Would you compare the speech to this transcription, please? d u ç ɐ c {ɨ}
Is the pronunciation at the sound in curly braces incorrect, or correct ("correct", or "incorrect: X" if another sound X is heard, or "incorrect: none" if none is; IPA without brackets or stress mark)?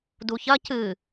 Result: correct